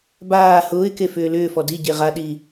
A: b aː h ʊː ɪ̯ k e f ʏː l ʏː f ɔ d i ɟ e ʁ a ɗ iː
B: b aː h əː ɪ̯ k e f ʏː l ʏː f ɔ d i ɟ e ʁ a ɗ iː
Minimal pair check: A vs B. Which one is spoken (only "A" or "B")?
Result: A